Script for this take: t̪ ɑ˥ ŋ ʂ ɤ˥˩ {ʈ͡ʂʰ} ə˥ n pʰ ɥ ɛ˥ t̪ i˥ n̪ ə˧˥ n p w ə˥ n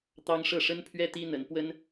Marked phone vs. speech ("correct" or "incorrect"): incorrect